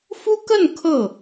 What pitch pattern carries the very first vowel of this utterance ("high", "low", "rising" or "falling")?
high